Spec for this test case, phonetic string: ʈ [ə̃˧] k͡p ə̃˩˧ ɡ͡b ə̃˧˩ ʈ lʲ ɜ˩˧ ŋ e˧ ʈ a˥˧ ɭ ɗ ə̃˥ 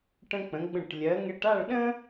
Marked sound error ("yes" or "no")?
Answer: no